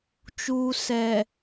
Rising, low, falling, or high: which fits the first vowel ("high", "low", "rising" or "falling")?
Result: low